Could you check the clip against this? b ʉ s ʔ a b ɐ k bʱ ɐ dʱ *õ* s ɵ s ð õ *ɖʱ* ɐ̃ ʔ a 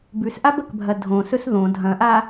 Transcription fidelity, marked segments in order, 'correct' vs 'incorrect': correct, incorrect: dʱ

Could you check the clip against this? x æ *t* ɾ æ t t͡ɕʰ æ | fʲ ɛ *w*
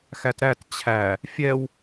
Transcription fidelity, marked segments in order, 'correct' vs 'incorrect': correct, correct

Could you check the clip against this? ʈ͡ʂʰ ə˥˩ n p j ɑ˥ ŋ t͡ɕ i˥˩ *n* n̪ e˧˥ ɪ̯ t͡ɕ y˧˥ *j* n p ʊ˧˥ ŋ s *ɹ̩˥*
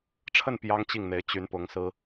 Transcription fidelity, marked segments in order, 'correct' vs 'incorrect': incorrect: ŋ, incorrect: none, correct

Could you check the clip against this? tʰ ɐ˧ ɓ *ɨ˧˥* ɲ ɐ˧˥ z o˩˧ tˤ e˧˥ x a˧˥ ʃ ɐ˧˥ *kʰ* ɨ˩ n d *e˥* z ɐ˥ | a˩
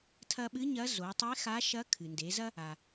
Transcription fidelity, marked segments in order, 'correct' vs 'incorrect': correct, correct, incorrect: e˩˧

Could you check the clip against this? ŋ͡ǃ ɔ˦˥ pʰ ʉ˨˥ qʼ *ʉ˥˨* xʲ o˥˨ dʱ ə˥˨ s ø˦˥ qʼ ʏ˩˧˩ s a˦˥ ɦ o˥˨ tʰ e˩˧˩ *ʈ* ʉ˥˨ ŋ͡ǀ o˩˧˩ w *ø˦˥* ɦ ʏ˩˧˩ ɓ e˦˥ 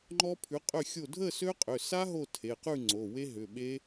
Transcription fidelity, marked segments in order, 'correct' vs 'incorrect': incorrect: ø˥˨, incorrect: q, incorrect: e˦˥

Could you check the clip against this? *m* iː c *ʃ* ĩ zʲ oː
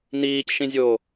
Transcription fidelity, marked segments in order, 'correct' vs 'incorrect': incorrect: n, correct

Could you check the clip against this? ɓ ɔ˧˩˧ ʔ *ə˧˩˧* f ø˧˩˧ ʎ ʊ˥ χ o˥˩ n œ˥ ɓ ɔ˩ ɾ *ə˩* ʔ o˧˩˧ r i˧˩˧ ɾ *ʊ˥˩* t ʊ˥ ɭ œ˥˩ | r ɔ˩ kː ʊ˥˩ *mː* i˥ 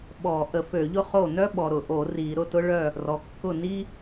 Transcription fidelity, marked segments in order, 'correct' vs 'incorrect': correct, incorrect: ʊ˩, correct, incorrect: n

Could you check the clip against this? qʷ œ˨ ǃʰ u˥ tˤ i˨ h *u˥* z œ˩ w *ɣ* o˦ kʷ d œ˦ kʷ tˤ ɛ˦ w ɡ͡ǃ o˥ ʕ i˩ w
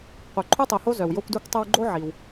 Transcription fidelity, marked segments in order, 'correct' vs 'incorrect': incorrect: o˥, incorrect: j

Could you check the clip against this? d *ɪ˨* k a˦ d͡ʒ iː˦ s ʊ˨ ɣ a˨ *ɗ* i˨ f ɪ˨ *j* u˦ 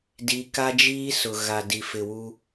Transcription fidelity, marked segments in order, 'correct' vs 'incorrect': incorrect: i˨, incorrect: d, incorrect: w

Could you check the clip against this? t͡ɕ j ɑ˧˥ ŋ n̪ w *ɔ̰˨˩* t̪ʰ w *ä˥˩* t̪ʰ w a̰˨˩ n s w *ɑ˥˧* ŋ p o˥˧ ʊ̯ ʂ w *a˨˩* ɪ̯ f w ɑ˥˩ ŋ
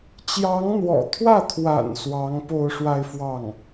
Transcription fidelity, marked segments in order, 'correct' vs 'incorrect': correct, correct, incorrect: ɑ˧˥, incorrect: a˥˧

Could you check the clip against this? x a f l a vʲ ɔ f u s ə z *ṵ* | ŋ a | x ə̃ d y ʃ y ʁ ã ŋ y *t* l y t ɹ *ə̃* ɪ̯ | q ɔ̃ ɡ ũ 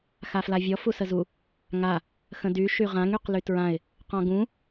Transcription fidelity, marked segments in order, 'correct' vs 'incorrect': incorrect: u, incorrect: q, incorrect: ã

